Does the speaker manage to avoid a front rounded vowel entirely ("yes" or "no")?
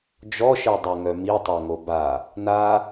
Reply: no